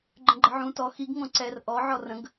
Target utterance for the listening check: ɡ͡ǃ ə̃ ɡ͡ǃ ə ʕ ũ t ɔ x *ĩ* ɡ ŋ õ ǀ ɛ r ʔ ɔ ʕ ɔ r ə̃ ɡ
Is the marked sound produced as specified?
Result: no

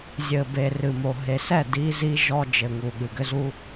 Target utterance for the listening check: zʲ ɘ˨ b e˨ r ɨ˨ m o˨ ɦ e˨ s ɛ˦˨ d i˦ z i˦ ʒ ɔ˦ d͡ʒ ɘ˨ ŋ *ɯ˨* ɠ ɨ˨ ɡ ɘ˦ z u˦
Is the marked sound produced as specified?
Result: no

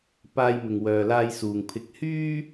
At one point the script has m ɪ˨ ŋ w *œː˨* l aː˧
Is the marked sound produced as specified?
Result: yes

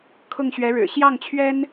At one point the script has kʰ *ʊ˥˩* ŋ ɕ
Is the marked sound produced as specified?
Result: yes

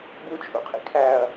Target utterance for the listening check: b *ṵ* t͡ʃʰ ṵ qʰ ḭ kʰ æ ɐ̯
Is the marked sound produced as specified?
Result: no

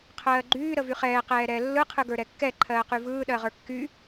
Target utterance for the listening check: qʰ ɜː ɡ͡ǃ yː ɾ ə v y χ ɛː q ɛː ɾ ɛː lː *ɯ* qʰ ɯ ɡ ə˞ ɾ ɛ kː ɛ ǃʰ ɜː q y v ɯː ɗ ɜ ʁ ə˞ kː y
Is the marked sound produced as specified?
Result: yes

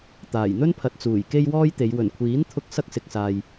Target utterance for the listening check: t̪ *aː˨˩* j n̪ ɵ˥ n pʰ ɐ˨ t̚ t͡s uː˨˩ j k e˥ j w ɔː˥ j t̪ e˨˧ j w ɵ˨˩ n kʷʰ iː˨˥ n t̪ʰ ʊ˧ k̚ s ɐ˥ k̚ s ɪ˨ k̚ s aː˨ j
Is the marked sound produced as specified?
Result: yes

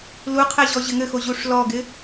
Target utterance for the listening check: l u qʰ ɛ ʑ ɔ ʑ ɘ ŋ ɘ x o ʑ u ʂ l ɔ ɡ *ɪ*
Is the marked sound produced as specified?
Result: yes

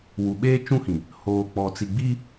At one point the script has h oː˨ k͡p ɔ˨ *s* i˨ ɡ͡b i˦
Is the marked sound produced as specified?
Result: no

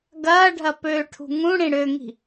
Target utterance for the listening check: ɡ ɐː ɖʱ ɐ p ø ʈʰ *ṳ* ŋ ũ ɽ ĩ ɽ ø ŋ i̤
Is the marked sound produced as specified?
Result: yes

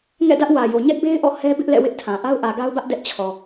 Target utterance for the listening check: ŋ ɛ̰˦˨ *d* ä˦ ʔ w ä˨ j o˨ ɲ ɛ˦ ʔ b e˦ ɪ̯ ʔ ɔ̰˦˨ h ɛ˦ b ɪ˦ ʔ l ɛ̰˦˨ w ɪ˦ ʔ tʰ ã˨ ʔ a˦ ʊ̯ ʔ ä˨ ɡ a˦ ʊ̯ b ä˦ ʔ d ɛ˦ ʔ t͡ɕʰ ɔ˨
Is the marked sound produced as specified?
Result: yes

